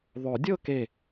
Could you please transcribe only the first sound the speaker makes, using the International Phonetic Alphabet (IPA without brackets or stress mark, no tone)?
ðˤ